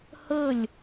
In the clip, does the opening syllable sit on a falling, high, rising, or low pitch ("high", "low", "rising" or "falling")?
falling